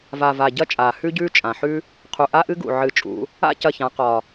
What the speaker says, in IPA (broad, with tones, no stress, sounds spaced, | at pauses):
v a˨˩ v a˨˩ ɟ ɐ˦ t͡ʃʼ aː˨˩ h ʉ˦ ɟ ʉː˦ t͡ʃʼ ã˨˩ ħ ʉ˦ | qʰ u˨˩ ʔ a˦ ʔ ɨ˦ ɡ ṵ˨˩ ʕ ɨ˨˩ t͡ʃʼ ṵ˩˧ | a̰˦ c ɐ˨˩ ç ã˩˧ q ɒ˨˩